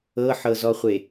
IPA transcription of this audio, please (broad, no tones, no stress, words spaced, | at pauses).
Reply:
ɤħɤzɔχʷe